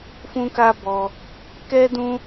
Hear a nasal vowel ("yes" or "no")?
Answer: yes